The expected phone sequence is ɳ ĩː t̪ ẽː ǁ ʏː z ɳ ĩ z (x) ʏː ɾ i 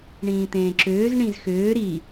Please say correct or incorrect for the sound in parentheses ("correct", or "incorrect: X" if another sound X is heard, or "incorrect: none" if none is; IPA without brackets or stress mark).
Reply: correct